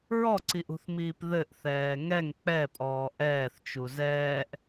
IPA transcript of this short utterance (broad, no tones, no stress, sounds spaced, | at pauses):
ɹ ɔ ǀ i ʔ ṳ θ m iː p ð ɘ ʔ θ ɛː ŋ ɛ ŋ k͡p ɛ pʼ ɔː ʔ ɛː θ t͡ʃ u z ɛː ʔ